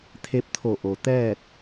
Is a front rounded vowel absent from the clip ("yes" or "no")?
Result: yes